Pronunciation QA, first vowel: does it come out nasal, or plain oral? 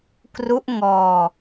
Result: oral